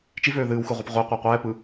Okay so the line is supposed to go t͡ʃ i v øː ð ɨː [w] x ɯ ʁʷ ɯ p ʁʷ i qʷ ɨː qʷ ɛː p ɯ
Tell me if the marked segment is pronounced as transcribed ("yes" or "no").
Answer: yes